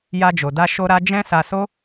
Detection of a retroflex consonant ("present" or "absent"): absent